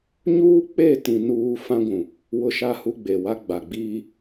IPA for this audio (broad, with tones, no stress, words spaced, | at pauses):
ɲuː˦k͡pe˦˨tĩ˨ nuː˦ fã˦ɡʷũ˨ | wʊ˦ʃa˦hu˦ɡ͡be˨ wa˦ɡ͡ba˨ɡ͡biː˦